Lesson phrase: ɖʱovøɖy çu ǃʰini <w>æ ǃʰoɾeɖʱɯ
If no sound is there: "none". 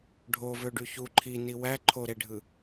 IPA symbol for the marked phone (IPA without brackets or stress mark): w